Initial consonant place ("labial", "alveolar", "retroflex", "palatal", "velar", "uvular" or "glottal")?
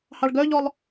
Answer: glottal